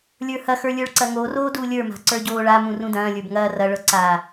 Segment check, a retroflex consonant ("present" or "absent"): present